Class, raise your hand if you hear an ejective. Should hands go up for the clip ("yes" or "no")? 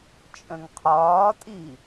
yes